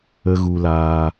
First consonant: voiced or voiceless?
voiced